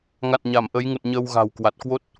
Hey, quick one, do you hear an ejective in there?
no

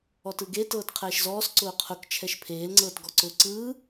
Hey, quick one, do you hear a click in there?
yes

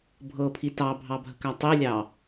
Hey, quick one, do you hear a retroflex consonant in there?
no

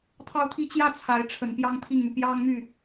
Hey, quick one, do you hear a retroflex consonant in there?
yes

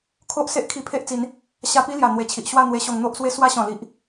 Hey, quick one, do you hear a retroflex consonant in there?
no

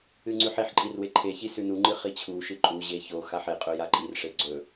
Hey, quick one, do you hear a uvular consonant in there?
yes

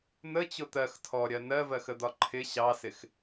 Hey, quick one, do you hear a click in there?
yes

